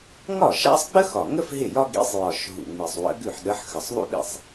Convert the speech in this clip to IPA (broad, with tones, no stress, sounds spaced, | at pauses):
ŋ ɒ˥˩ ʃ a̰˥ sˤ ɡ͡b ə˥ x ɒ˨˩ ŋ ə˥ f ɦ ɪ˥˩ j ɒ˥ ɡ ḭ˨˥ sˤ j ɒ˨˩ ʃ ɦ ṵ˨˩ ŋ͡m i˨˩ sˤ w ə̰˨˥ ɡ ʉ˥˩ ħ ɗ ə˨˥ ħ x ə˨˩ sˤ ðˤ ṵ˥ ɗ ḭ˥˩ sˤ